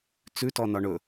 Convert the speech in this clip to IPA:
t͡s ʉ t ɔ n ɒ ɳ ɵ

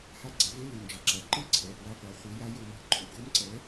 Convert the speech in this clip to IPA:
h a˧˥˧ ɡ͡ǀ ɛ˩˥ v e˧˥˧ l ɯ˩˧˩ n d͡ʒ ʌ˩˥ ǁ a˩˧˩ ǃ ɯ˥˨ ǀʰ ɛ˩˧˩ p w a˧˥˧ qʷ a˩˥ χʷ i˩˥ j a˧˥ j o˧˥ m b ɯ˩˥ ǃʰ ṵ˥˨ ɡ o˧˥ m ǀ ɛ˩˥

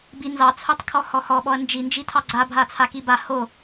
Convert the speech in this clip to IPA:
b i n z ɑ t͡sʰ o tˤ kʰ ɔ h ɔ h ɔ ɓ ɔ ɐ̯ n d͡ʒ i n d͡ʒ i tʰ ɑ ɡ͡ǀ a bʱ a t͡sʰ a k i b a h o

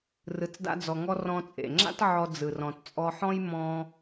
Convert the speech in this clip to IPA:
r ɯ˧ t͡s d a̰˥ d͡z ɔ˧ ŋ ɔ˥ r ɔ̃˧ t͡sʼ ḛ˩ ŋ͡ǁ a̰˥ t ʕ ɔ˧ d͡z ɯ˩ r ɔ̃˩ t t͡sʼ ɔ˧ ħ ɔ̃˥ j m ɔ̃˧

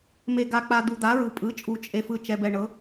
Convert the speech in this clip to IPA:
m e˨ ɡ a˨ k͡p a˨ d̪ u˨ d̪ a˩˥ ɹ ɯ˨ pʼ ɯ˩˥ t͡ʃʼ u˨ t͡ʃʼ e˨ f ɯ˨ t͡ʃ ɛ˨ b ɛ˨ ɳ ɤ˩˥

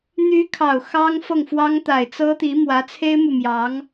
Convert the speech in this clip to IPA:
n̪ y˧˥ kʰ ɑ˨˩ ʊ̯ x ɑ˥ ŋ f ɤ˥˩ ŋ f w ɑ˥ ŋ t̪ a˨˩ ɪ̯ t͡s ɤ˥ t̪ i˧˥ m w ä˧˥ t͡sʰ e˥ ɪ̯ m u˨ m j ɑ˧˥ ŋ

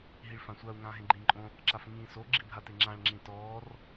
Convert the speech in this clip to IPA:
ɦ i ɭ f ã sʷ a u̯ ŋ ãː ɦ ẽ ɡ͡ǃ ĩː ǃʼ õ | ǁ a f ŋ ĩː s o ɡ͡ǁ i bʱ a t e ŋ͡ǁ ã ɭ ŋ͡ǁ ĩ t ɔː r

